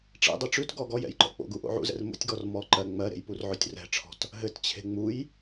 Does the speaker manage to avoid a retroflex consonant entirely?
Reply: no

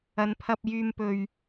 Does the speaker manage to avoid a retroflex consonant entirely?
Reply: yes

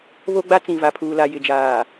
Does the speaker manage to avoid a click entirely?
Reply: yes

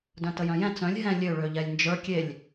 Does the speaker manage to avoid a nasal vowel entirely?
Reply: no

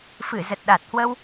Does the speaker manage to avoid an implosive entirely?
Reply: no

